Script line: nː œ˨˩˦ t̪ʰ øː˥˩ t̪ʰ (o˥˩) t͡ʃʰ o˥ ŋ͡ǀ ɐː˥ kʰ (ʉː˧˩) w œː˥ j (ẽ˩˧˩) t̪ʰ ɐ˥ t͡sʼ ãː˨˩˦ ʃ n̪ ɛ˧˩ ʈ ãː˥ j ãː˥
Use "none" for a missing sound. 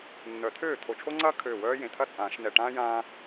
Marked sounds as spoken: o˧˩, øː˧˩, ẽ˩˧˩

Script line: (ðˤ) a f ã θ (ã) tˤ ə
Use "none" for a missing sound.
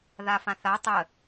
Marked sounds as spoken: ð, a

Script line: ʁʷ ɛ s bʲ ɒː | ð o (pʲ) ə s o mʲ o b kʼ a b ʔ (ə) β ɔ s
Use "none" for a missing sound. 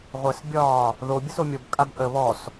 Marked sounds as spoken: bʲ, ə

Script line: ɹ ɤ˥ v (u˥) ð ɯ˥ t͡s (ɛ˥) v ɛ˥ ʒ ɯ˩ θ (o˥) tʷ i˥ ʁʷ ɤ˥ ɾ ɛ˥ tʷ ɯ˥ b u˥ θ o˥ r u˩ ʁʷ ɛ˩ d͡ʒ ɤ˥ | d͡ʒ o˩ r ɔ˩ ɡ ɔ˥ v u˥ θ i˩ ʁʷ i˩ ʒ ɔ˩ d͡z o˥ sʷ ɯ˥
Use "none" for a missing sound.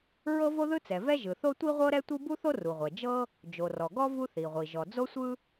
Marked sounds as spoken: o˥, ɛ˩, o˥

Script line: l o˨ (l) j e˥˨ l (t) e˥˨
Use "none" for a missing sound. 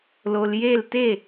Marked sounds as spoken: l, t

